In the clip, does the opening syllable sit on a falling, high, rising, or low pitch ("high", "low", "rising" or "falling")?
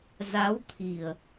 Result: rising